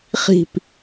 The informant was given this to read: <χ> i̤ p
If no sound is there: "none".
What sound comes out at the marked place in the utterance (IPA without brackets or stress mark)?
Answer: χ